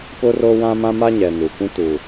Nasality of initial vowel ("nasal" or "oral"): oral